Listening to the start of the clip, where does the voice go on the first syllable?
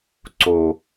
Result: low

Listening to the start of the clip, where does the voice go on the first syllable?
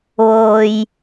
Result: low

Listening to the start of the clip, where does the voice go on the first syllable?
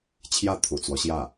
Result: falling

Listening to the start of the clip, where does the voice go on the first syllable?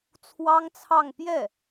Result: high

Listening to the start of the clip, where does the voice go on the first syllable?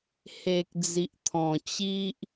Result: low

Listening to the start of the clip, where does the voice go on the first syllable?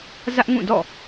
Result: high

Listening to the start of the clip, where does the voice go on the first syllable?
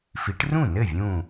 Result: rising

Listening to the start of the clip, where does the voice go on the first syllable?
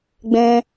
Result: high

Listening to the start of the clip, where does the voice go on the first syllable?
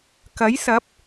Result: rising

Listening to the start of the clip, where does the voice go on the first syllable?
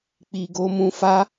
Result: low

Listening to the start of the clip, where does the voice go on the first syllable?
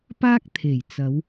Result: high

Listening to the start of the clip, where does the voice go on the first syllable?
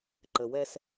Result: low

